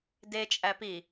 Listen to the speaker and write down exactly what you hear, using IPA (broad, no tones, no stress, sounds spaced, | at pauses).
d e t͡ʃʼ æ p i